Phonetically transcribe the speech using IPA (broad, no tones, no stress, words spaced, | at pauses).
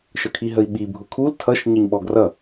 ʃəkʰiɦəi̯ɓi bʱʊkʰul tʰʌʃ ɲəɲɓɔɡrʌ